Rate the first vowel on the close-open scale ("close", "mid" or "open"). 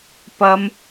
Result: open